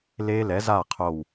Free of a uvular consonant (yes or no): no